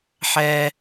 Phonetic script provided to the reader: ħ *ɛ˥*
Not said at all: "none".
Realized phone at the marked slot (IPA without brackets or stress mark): ɛ˥